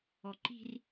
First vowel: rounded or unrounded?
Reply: rounded